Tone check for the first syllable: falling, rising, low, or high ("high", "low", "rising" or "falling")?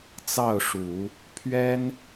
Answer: falling